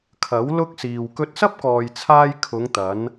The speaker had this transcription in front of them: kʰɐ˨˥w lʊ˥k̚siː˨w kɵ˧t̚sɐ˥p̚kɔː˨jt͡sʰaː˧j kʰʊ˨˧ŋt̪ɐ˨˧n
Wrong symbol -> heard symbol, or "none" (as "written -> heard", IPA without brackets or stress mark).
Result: none